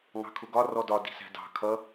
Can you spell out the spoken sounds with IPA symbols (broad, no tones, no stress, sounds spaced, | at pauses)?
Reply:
ŋ ɑ̤ kʰ ʊ ɡ ɒ r ɔ d ɒ d i̤ s æ̤ d ɑ̤ kʰ ʌ